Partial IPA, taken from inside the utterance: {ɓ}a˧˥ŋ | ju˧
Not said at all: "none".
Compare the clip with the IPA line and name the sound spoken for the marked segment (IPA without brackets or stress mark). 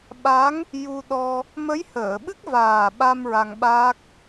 ɓ